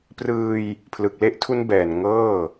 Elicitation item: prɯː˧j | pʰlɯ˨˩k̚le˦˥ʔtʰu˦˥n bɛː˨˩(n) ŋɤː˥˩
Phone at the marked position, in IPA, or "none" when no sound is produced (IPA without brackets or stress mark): n